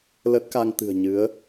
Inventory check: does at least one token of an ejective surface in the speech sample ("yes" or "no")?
no